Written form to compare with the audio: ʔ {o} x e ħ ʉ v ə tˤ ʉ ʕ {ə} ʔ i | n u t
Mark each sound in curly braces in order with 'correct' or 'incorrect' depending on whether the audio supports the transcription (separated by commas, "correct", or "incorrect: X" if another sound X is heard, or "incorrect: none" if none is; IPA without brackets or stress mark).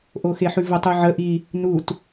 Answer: correct, correct